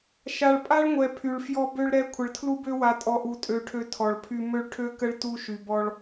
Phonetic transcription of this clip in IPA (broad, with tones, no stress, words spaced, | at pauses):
ʃa˨ɭpʼa˦ɭŋʷɛ˨ pʰy˨ɭfjɔ˦ bø˦ɭɾɛ˦ kʷʰə˨ɭtʰlu˦ bø˦wa˨tʼɔ˨ʔu˨ tʼø˦ʈʰø˦ tʰɔ˨ɭpʰy˦ mø˦ɭʈʰø˦kə˦ɭ tu˦ʃy˨bɔ˦ɭ